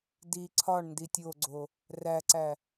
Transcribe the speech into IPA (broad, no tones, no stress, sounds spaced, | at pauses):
d i ǀʰ ɒ ɳ n d i tʲ o ɡ͡ǀ o | r æ ǀ æ